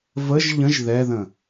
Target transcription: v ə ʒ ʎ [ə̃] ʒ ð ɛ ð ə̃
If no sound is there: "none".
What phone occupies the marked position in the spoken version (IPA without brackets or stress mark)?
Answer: ə̃